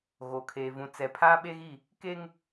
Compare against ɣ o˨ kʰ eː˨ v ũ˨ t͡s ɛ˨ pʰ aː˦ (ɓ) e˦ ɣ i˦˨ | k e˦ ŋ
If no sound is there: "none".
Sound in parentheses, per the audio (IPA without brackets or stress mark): ɓ